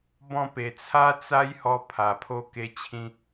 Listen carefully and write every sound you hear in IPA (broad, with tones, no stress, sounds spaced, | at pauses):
b ɔ̃˧ p e˨˩ t͡sʰ a˦ t͡s a˦ j h ɔ˧ pʰ a˨˩ pʰ o˧ k e˧ t͡ɕʰ ĩ˧